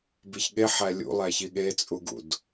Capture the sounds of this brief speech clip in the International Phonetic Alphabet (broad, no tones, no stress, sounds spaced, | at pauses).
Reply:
b i ç ɠ e ħ æ lʲ ṵ lˠ æ ç i ɠ e t͡sʼ u ɡ ṵ d